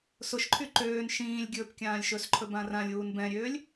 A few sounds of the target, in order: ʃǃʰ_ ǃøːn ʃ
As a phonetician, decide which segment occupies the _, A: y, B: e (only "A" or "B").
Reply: A